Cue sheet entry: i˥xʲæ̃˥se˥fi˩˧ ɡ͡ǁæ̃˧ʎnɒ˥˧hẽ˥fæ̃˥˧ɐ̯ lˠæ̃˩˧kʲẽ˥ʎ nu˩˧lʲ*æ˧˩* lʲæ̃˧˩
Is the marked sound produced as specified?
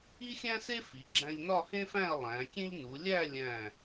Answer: no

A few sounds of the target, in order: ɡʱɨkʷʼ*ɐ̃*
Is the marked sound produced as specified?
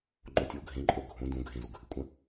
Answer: yes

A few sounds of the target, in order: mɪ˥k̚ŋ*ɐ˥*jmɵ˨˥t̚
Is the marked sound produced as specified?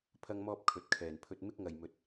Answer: no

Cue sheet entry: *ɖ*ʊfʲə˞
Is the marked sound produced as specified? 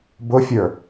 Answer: no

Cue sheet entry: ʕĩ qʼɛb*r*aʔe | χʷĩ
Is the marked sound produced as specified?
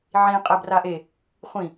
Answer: yes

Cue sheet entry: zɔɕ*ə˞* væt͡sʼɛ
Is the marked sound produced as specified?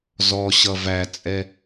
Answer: no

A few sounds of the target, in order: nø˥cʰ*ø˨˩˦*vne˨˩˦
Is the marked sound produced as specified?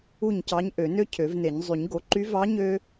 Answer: yes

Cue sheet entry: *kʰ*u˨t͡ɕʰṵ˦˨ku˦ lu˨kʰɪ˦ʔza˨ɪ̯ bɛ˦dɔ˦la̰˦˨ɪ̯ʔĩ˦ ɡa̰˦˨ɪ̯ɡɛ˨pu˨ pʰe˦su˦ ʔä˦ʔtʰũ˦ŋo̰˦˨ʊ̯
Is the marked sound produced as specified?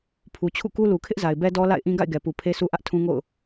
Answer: no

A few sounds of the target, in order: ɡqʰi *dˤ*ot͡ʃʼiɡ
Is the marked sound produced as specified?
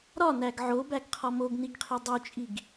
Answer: yes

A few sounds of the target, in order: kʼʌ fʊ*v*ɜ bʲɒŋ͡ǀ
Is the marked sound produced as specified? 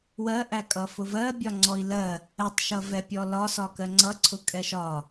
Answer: yes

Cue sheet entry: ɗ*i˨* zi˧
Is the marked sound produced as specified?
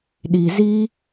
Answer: yes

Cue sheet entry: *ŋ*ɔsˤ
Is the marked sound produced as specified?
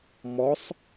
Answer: no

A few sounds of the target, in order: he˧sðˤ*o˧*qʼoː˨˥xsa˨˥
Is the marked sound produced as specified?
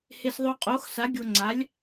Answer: yes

